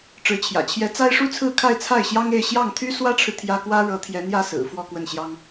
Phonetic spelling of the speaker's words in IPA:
ʈ͡ʂ ɻ̩˧˥ t͡ɕʰ j ä̰˨˩ t͡ɕʰ j ɛ˧˥ t͡s a˥ ɪ̯ ʂ u˥ t͡sʰ ɹ̩˥˧ kʰ a˥˧ ɪ̯ t͡sʰ a˥˩ ɪ̯ ɕ j ɑ˥ ŋ e˥˧ ɪ̯ ɕ j ɑ˥˩ ŋ t̪ʰ y˥ s w ä˥ ʈ͡ʂʰ ɻ̩˨ t̪ʰ j ä˥ k w ä˥ ɻ ɤ˧˥ t̪ʰ j ɛ˧˥ n̪ j ä˥˩ s ɹ̩˨˩ f w ɔ˥˧ k w ə˥˩ n ɕ j ɑ˥ ŋ

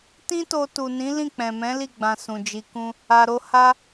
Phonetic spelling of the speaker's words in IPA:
t ĩ˦ t o˧ t u˨ n ĩ˨˦ l ĩ˦˨ k͡p ɛ̃˨ m ɛ̃˨˦ l i˦˨ ɡ͡b ã˧ s ũ˨ d͡ʒ i˧ k ũ˦ | a˧ ɾ o˦ h a˦

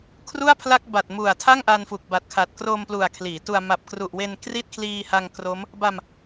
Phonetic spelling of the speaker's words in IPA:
kʰ r u˥˩ a̯ pʰ l a˥˩ k̚ b a˨˩ t̚ m u˨˩ a̯ tʰ a˥˩ ŋ ʔ a˧ n f u˨˩ k̚ b a˨˩ t̚ kʰ a˨˩ t̚ k r o˧ m p l u˨˩ a̯ kʰ l iː˩˦ t u˧ a̯ m a˨˩ p̚ k r u˨˩ ʔ w e˧ n k r i˥˩ t̚ kʰ l iː˧ h a˧ ŋ k r o˦˥ m | b a˧ m

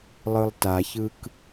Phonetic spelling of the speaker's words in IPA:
lˠ ɯ lˠ t a ç ɯ k

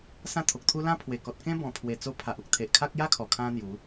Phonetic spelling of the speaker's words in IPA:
s ã˦ t̪ʰ o˨ k̚ t̪ʰ u˦ l ã˦ pʰ w e˨˩ k ɔ˨ t̚ k ẽ˦ b ɔ̃˨˩ pʰ w e˨˩ t͡s o˧ pʰ a˨ ʔ u˨ k̚ t̪ʰ e˨ ʔ kʰ a˦ k̚ j a˦ kʰ ɔ˨˩ kʰ ã˧ n̪ j u˨˦

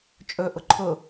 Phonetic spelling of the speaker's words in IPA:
t͡ʃʼ ɵ ʔ ʊ ǃʰ ʊ

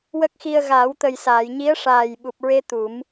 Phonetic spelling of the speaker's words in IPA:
w ə˦˥ k̚ x i˧ ə̯ ɣ aː˨˩˦ w t̪ ə˨˩ j s aː˨˩˨ j ɲ i˧˥ ə̯ ʂ aː˨˩ j ɓ u˨˩ p̚ ɹ e˧ t̪ u˨˩˦ m

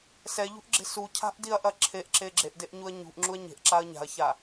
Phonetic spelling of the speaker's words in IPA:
s ɛ ʎ ṳ ʔ ɡ͡ǁ e̤ s u cʰ a̤ ʔ d i ɐ̯ ʔ ɐ ǁʰ e ʔ ǁ e ɡ͡ǁ e ʔ d e ʔ ɲ u ɐ̯ ɲ ṳ ʔ ŋ͡ǁ u ɐ̯ ɲ e̤ ʔ ǁ a ɐ̯ ɲ a̤ ɐ̯ ç a

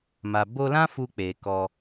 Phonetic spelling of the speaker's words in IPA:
m a˨ b o˧ l ã˦ f u˧ k͡p e˨ k ɔ˧

